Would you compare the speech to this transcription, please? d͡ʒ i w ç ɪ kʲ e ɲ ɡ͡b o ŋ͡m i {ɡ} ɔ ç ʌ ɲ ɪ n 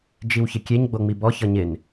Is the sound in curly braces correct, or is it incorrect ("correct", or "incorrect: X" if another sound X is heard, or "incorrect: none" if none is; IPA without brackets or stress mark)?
incorrect: b